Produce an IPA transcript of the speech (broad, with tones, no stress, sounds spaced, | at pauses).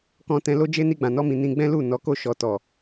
k ɔ̃˧ t ɛ̃˧ l o˦ d͡ʒ e˦ n i˧ ɡ͡b ã˨ n ɔ˧ m ĩ˨ n ĩ˧ ɡ͡b ɛ̃˦ l u˦˨ n ɔ˨˦ k o˦˨ ʃ ɔ˨ t ɔ˨